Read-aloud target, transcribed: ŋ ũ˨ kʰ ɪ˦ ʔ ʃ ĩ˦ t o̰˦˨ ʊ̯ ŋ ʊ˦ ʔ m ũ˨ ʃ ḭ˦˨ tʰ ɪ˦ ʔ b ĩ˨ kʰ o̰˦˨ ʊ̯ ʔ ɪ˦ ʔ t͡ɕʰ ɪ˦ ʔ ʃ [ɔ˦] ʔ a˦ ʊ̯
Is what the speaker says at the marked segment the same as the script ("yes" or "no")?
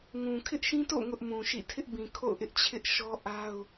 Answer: yes